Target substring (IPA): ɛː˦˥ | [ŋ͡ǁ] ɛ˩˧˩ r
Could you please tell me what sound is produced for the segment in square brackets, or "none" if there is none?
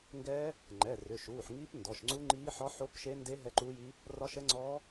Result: ŋ͡ǃ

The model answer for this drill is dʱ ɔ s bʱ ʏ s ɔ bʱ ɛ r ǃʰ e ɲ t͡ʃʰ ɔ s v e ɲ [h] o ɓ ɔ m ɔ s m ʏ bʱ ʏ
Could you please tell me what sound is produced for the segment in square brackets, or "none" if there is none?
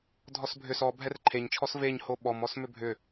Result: h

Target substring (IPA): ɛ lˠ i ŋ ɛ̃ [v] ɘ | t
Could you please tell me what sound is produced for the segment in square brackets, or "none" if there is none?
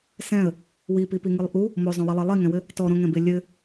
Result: w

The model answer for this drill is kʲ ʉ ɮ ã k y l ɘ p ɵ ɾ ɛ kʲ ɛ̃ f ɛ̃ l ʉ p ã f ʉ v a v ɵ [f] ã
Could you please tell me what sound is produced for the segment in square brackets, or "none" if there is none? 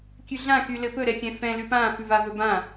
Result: b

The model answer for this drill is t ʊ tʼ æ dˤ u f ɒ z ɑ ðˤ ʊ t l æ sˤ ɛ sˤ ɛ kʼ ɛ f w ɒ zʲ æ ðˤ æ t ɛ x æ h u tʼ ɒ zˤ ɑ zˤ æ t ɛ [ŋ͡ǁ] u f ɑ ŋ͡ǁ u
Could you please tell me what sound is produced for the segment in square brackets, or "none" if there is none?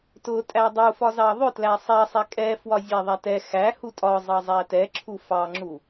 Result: ǁʰ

